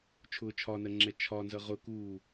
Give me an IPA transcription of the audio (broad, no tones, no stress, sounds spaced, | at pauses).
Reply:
t͡ʃʰ ʊː t͡ʃʰ ɒ n ɜ ŋ͡ǁ ɛ t͡ʃʰ ɒ n z ʌ ʁ ʊ k uː